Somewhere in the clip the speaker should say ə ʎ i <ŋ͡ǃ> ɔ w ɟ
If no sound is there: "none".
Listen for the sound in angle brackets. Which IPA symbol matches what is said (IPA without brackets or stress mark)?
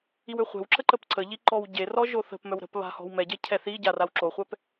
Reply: ǃ